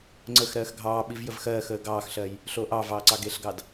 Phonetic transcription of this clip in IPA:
ŋ͡ǀ ə x ɾ ɜː x ɡʱ ɑː ɓ i v j ə v x ɜː x əː ɡ ɑː x ɬ ɜ j | ɬ o ʔ ɑ v ɑː ǀ ɑ ɡ e ɬ ɡ ɑ d

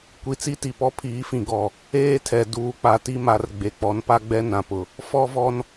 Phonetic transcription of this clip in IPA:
kʷ i˨ t͡s i˦ t i˨ p ɔ˦ pʰ iː˨˦ f ĩ˨ ɡ ɔ˨ | eː˦ tʰ ɛ˨ d uː˨ k͡p a˨ t i˦ m a˨ r ɡ͡b e˨ k͡p ɔ˨˦ n p a˦ ɡ͡b ɛ˦ n ã˨ p ʊ˨ | f ɔ˦ v ɔ˦ n

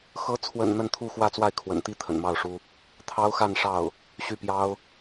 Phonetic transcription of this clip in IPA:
x ɤ˧˥ t͡sʰ w ə̰˨˩ n n̪ ə˥˧ n t̪ʰ u˥˧ x w ä˥˧ t͡s w a˥˩ ɪ̯ kʰ w ə̰˨˩ n t̪ i˥ t̪ʰ ə̰˨˩ n m ɑ˥˩ ʊ̯ ʂ u˥ | t̪ʰ ɑ˥ ʊ̯ x a˥˧ n ʂ ɑ˥˩ ʊ̯ | ɕ y˥˩ p j ɑ˥ ʊ̯

